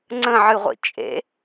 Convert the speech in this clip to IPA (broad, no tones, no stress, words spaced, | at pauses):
ŋ͡ǀə̃ʕɨʁʷḭ t͡ʃʼḛ